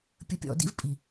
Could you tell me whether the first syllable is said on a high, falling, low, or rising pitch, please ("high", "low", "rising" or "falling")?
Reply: low